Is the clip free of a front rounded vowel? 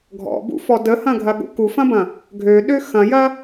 no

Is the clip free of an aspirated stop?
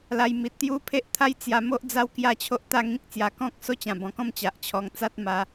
no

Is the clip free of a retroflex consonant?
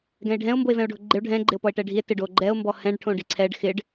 no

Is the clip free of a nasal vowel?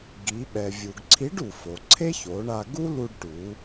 yes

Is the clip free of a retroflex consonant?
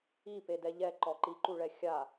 no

